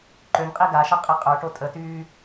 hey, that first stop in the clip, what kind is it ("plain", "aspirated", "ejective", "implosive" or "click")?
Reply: click